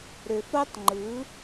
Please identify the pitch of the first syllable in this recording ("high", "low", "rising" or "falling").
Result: low